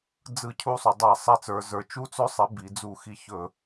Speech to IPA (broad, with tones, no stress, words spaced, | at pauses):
d͡zɯ˧˩˧cʰu˧sˤʏ˩˧dˤa˧˩˧ sˤɛ˨˥t͡sə˞˩˧zə˞˩˧ t͡ʃu˨˥t͡sɵ˨˥sˤi˩˧ bi˩˧d͡zu˧˩˧xi˧ çɵ˧˩˧